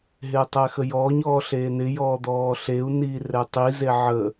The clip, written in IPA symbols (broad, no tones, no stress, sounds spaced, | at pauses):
ɦ ɪː tˤ ɛ x ə j ɔː ɲ ɔː ɬ eː n ɪ j ɔː d̪ ɔː ɬ e u̯ n iː r ɛ tˤ i z e ʕ ə